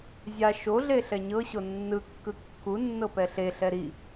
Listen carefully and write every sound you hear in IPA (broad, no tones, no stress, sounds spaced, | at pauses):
zʲ a ʃ o ɮ e ɬ ɛ ɲ ɤ ɕ o nː ɯ kː ɯ kː u nː ɤ p ɛ ɬ e ɬ ɛ ɾ i